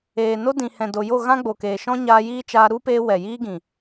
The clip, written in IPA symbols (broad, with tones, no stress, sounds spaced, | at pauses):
eː˨ n o˦ d ĩ˨ h ɛ̃˨ d o˨ j o˦˨ ɣ ã˦ ɡ͡b o˨ k eː˨ ʃ ɔ̃˦ ɲ aː˧ j iː˦ t͡ʃ aː˧ ɾ u˦ p eː˧ w ɛ˨ j iː˦ ɡ ĩ˨